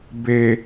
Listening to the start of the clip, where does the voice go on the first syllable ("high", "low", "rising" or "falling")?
low